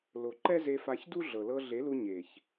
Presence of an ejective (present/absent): absent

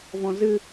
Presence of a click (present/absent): absent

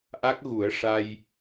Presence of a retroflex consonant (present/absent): present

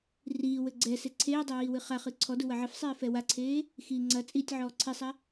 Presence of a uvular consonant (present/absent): present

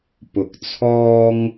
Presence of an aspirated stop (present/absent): present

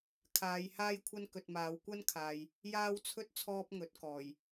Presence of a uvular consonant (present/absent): absent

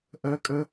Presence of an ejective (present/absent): present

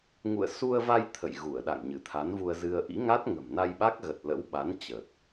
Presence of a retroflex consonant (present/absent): absent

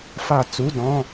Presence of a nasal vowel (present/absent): present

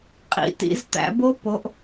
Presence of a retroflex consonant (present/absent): absent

